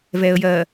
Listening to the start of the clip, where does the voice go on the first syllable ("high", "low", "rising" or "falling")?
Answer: low